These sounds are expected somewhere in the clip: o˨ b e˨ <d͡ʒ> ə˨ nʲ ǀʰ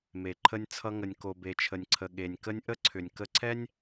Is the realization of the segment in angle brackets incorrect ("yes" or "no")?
yes